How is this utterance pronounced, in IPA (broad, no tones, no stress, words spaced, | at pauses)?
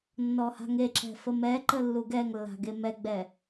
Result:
nːɔha̤ŋeǁɛ̤ fəmɛǃə lːuɡɛŋlːa̤ ɡemɛɡ͡bɛ